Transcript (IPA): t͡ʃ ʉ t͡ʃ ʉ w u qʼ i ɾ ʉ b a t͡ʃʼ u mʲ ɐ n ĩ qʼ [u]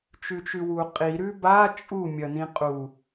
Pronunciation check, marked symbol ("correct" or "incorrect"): correct